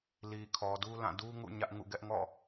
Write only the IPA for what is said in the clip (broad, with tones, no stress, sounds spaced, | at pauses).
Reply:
l i˨ kʰ ɔ˨ d u˦ l ã˦˨ d u˦ ŋ ṵ˦˨ ɲ ä˦ ʔ ŋ ṵ˦˨ ɡ ɛ˦ ʔ ŋ ɔ̰˦˨